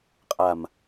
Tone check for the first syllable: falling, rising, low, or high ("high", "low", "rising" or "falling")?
low